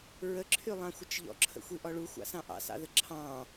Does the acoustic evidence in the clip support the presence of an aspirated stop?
yes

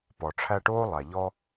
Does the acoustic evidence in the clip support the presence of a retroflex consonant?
yes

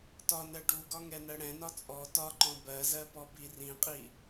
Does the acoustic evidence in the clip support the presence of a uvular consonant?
yes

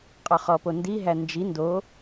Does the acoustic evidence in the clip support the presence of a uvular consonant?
yes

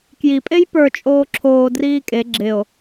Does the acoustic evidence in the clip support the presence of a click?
yes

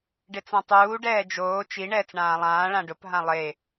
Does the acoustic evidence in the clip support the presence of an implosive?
no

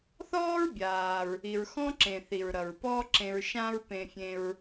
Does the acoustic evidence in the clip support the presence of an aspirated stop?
no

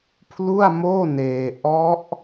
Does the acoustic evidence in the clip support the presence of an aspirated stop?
yes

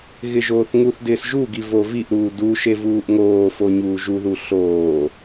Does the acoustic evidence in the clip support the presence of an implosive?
no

